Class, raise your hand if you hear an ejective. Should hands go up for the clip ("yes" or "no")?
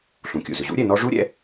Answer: no